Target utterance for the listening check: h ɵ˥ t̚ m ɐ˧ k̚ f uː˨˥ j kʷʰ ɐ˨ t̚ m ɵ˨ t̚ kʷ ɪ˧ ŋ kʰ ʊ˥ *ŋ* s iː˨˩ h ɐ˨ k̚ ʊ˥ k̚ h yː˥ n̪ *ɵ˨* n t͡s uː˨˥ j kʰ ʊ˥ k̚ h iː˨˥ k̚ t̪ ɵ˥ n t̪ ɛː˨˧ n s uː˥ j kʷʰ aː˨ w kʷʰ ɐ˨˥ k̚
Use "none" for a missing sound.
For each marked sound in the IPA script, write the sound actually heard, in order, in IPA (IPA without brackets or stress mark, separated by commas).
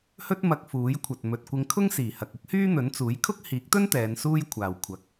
ŋ, ɵ˨˥